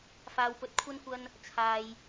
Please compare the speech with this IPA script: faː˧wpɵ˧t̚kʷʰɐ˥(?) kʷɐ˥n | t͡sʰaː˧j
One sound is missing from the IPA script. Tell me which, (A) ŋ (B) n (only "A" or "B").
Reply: B